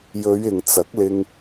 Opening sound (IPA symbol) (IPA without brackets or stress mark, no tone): j